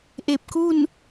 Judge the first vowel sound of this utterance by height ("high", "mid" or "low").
mid